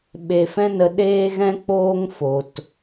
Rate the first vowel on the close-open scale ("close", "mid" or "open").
mid